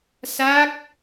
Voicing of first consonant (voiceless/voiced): voiceless